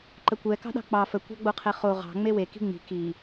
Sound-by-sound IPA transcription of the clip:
ǃəkʷɛ kɑ̤ɗɑ̤k͡pɑ fə kʷɑ̤ɡ͡boqʰɛχo ʁɑ̤ ŋ͡mewe ki̤ŋ͡mi̤ ki

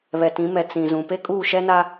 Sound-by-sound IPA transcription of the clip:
βɛ˨tĩ˨˦mɛ˨ t͡sĩ˨zũ˨ pe˦kʼuː˦˨ʃɛ˦na˦

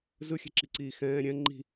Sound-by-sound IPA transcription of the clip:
zɯxʲɛ̤ǁiǀiː xɛ̃ː ɾʲɛ̃ ŋ͡ǃi̤

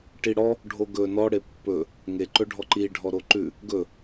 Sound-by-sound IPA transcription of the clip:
ʈiɽɔ | ɖʱoɡɵ nɔɽe pːɵ | ŋeǃɵɖʱɔ ǃiɖʱɔ ɾoǃʉ | ɡɵ

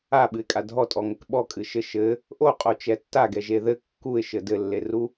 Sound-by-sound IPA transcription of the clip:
aɓɨɪ̯kʼa dʱɔtʼɔŋɘk ɓɔkʼɨʃɘ ʃɘ | ʔoqʼot͡ʃɛ tːaɡɛʒe ðɘ kːuɪ̯ʃɘ dɘlːeru

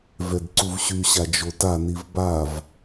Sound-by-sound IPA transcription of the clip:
vɛdǀuvɕyɕa d͡ʒotaniv bav

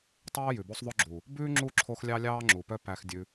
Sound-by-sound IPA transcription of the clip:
tˤø˦ə̯ jʉ˨bo˦sˤ ðˤɵ˧ɡ͡ǁu˨ | bʉː˦ŋ͡ǁu˦˨ǁʰo˧x lʲɑ˦lʲɑː˦ŋ͡ǁu˨pœ˦ pæ˧xdʲʉ˧

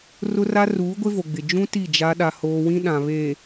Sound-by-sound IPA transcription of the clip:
rʊ˦ra˦ ruː˨˦ɡʷɪ˦vo˨ɡ͡bɪ˨ d͡ʒũ˦ ti˦˨d͡ʒa˦ ɗa˦hoː˦ wĩ˦ɗã˨ βe˨

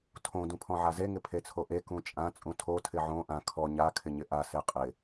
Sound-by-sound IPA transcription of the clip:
tʰõ dũpʰɔ̃ʕaze ŋɪpʰet͡sʰoʔe kũt͡ʃʼã t͡sʼũtʰo tʰɪʕõ ʔã kʰɔ ɲa kʰɪɲɪʔa seqʼɪ

